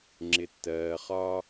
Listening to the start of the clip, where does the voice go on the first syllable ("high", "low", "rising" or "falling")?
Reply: low